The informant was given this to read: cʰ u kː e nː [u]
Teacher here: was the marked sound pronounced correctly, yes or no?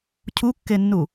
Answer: yes